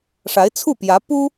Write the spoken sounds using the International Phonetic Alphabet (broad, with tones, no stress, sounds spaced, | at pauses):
ʂ a˧˥ ɪ̯ t͡sʰ u˥˩ p j ä˧˥ p u˥